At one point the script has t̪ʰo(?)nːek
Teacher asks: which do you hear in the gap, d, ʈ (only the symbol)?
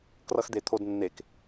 d